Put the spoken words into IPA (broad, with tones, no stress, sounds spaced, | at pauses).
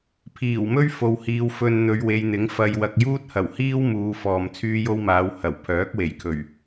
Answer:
pʰ iː˨˩ w m ɵ˥ ɥ f o˧ w h iː˧ w f ɵ˧ n n̪ ɵ˨˧ ɥ w e˨˧ j n̪ ɪ˨˥ ŋ f ɐ˧ j w ɐ˧ k̚ j uː˥ t̚ h ɐ˨˩ w h iː˥ w m uː˨˧ f ɔː˨ m t͡sʰ yː˥ j o˥ w m aː˨˧ w h ɐ˨˩ w pʰ œː˨˥ k̚ w e˨˩ j kʰ ɵ˨˩ ɥ